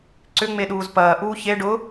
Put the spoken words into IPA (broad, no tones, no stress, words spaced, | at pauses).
ǀʏŋ͡me ɗuːzpɐː ʔuːçe ɖʊ